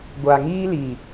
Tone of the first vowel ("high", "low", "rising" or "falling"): low